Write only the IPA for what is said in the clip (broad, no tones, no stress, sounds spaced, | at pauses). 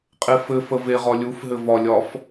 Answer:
qʼ e f ɘ f ə v e ʁ ɒ lʲ u f ɦ ɘ v ɒ lʲ ɒ f